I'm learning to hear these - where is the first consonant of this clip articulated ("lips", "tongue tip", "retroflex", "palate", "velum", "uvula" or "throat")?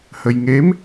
throat